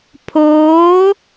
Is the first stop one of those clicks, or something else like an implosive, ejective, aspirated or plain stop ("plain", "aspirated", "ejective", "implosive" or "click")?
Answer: aspirated